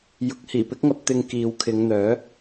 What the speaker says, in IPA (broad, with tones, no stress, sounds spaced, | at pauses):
j ʊ˨˥ k̚ h iː˨˩ p ɪ˥ k̚ ŋ ɐ˧ p̚ t̪ ɪ˧ ŋ k iː˨ w kʰ ɪ˨˧ ŋ n̪ œː˨˥